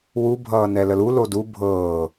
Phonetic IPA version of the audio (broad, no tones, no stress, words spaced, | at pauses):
wu bʱʌːnɛləlu lodu bʱɤː